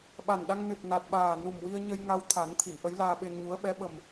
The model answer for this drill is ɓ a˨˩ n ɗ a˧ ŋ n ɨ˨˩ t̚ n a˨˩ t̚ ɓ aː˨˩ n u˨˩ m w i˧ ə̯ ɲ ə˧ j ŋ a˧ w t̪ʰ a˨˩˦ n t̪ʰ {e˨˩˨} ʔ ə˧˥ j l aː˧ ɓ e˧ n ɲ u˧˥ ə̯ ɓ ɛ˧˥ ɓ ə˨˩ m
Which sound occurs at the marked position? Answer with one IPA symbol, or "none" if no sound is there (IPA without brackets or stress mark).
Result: i˨˩˨